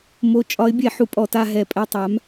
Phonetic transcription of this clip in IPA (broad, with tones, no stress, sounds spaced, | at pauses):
m o˨˥ t͡ʃʼ ɒ˨˥ ɪ̯ bʲ ɛ˧˩˧ ħ u˨˥ pʼ ɔ˧˩˧ t a˦˨ ɦ ɛ˧˩˧ pʼ ɛ˦˨ tˤ a˨˥ m